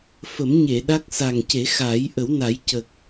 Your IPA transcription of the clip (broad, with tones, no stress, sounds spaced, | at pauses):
f ə˨˩˦ m ɲ e˨˩˨ ɗ a˦˥ k̚ s a˨˩ ŋ c e˨˩˦ x aː˨˩˦ j ʔ ə˨˩˦ w n a˨˩˦ j c ə˨˩ k̚